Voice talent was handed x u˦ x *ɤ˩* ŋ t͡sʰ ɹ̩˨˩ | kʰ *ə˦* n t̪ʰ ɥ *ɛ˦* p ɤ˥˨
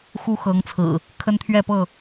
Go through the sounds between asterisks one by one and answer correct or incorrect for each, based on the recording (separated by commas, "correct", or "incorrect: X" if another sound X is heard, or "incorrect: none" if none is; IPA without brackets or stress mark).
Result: incorrect: ɤ˨˦, correct, incorrect: ɛ˥˨